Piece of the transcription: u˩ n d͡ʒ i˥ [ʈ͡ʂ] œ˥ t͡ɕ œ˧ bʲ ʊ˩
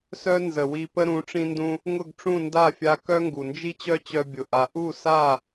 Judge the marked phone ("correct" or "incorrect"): incorrect